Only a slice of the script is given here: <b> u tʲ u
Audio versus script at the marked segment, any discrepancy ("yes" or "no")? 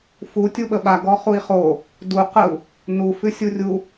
yes